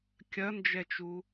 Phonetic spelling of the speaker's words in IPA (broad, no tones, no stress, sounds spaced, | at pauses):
kʲ ɐ n d͡ʒ ɛ t͡ʃ u